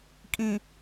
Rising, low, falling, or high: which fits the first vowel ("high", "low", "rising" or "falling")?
low